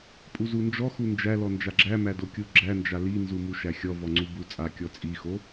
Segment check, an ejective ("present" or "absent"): present